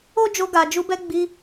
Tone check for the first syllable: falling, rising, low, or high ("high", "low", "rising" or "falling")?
high